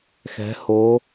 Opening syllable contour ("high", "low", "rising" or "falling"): rising